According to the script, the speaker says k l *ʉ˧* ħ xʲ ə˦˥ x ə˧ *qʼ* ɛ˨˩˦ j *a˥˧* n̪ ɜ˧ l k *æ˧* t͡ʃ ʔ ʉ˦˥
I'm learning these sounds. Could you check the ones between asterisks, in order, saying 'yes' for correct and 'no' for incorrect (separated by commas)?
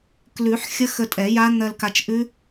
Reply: no, no, no, no